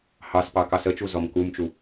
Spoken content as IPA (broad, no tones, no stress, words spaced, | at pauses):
hɑspɑ kɑsət͡ʃu zɔmkumt͡ʃu